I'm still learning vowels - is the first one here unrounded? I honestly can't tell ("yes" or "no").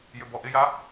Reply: no